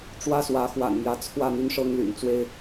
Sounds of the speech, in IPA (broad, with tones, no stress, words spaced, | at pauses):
ʈ͡ʂwä˦swä˨˦xwa̰˨˩nmjä˨˦ t͡sʰwä˥˨n̪y˦nʂɤ˦ŋ ly̰˨˩nt͡swe˦ɪ̯